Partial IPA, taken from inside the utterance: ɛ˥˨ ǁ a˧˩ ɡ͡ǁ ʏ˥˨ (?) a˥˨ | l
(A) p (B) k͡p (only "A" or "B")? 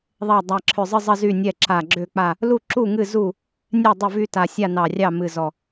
B